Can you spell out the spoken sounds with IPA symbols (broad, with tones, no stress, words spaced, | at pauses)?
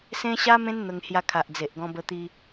sẽ˦ ɕa˦mẽ˦nn̪ə˧ŋhja˧ kʰa˨ʔd͡ze˨ʔɡɔ̃˧bə˧ t̪i˧